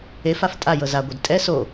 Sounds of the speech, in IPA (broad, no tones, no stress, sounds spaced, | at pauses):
e f a f tʼ a j ɤ z a ɡʷ e d tʼ ɛ s o